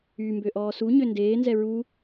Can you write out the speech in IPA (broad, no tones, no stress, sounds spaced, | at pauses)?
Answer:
y m b ø ʔ ɔː s u ɲ ø n d eː n z ɛ ɹ u